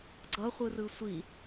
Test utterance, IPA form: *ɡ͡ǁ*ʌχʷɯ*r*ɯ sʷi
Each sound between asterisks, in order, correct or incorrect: incorrect: ɡ͡ǀ, correct

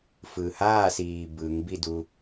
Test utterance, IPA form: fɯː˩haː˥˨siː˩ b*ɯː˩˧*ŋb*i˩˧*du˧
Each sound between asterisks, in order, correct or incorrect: correct, incorrect: i˥˨

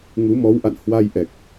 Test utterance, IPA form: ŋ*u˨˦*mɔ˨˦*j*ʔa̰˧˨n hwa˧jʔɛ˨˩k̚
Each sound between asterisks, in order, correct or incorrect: correct, incorrect: w

